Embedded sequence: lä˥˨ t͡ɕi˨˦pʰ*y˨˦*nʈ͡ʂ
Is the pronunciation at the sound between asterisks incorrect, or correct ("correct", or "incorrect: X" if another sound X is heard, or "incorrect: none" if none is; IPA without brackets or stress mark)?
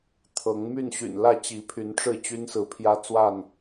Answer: correct